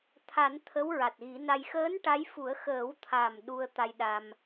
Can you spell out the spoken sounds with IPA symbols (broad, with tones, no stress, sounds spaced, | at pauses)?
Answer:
t̪ʰ a˨˩˦ n t̪ʰ ə˧˥ w ɹ a˨˩ t̚ ɣ i˨˩˦ n a˧ j x əː˧˥ n ʈ a˧˥ j f u˨˩˦ ə̯ x əː˨˩˦ w t̪ʰ a˨˩ m ɗ u˧ ə̯ t̪ a˧ j ɗ a˧ m